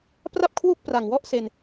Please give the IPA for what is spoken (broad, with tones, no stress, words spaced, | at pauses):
pra˥˩p̚kʰwu˥˩k̚pra˨˩ŋwɔ˦˥ʔ se˧n